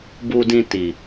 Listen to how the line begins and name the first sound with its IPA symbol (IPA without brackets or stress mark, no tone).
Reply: b